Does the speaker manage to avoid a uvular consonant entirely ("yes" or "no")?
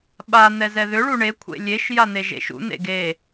yes